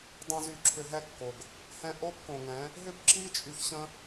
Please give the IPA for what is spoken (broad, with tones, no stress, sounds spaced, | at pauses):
dˤ õ˧ z y˨ ǁʰ ʏ˧ ɦ ɛ˦ kː o˨ ɡ | h ɛ̃˧ ʔ o˦ b k õ˨ ŋ ɛ̃˨˦ | ɦ ʏ˦ b ǁ i˦ t͡ʃʼ y˧ ç ɕ ə̃˦